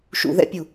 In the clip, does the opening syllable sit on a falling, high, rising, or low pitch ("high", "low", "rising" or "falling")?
low